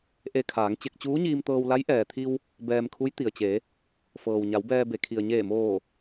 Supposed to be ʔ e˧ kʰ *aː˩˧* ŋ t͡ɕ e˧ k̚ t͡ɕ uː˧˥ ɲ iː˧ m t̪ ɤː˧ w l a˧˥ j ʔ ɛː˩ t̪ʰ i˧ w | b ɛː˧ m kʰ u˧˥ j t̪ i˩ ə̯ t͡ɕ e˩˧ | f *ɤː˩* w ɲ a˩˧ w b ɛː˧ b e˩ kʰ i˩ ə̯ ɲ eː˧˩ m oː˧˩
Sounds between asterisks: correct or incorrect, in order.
correct, correct

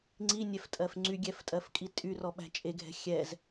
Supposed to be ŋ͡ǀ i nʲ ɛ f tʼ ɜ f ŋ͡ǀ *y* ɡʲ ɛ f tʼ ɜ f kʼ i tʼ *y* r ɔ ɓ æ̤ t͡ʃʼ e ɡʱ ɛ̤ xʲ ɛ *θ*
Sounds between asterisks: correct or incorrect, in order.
correct, correct, incorrect: z

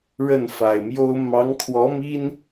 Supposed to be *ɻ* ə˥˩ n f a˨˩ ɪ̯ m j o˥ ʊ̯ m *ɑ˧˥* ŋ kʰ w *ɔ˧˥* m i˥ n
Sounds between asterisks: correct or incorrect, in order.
correct, correct, correct

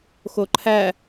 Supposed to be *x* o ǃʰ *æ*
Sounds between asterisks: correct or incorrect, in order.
correct, correct

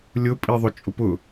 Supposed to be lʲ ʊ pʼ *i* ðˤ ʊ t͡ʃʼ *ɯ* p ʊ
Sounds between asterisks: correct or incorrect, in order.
correct, incorrect: ʊ

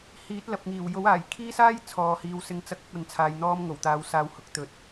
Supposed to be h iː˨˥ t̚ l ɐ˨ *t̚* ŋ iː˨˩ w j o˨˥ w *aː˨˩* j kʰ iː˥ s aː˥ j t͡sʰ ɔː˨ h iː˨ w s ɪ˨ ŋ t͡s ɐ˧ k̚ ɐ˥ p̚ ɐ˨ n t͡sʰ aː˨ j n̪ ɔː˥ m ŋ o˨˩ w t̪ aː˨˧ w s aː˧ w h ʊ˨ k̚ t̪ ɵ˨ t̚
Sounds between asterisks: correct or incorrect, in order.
incorrect: p̚, correct

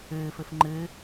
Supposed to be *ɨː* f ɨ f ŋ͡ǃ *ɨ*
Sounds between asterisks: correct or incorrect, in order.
correct, correct

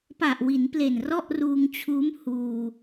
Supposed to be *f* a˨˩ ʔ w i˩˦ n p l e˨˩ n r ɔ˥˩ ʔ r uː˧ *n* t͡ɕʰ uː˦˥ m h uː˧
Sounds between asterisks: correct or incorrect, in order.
incorrect: p, incorrect: ŋ

